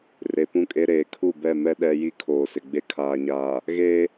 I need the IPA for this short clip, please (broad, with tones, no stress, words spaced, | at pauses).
re˨pũ˦kʼe˦ ɾeː˨kʰu˦˨bɛ˦˨ mɛ˦ ɗɛ˦ ji˦kʰoː˨sɪ˨ɡ͡be˦ kʰaː˨ɲaː˨ | ɣeː˦